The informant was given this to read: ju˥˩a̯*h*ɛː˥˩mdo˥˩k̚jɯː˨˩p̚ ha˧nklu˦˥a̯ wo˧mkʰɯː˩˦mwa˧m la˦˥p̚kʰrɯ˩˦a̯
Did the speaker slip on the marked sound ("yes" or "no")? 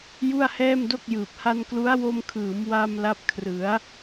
no